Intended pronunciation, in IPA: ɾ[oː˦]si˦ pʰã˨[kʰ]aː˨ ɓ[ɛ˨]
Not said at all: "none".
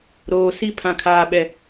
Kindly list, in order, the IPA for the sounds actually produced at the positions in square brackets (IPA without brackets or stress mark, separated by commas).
oː˨, kʰ, ɛ˨